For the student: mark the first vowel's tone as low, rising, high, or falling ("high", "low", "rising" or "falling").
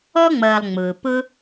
high